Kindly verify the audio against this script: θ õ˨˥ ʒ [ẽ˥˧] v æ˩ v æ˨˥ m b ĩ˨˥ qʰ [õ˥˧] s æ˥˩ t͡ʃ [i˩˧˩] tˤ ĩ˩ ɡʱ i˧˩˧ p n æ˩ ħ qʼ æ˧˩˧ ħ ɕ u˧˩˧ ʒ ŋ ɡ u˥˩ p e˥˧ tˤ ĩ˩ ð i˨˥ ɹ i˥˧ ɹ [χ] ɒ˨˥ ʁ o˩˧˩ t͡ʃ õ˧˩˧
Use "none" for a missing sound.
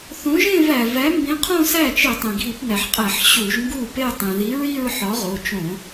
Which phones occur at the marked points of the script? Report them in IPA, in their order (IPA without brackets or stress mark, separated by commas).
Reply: ẽ˥˧, õ˥˧, i˧˩˧, ħ